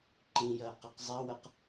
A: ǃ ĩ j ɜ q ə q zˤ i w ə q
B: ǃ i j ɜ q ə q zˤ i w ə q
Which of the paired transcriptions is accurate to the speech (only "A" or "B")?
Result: A